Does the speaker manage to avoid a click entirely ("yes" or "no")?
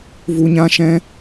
yes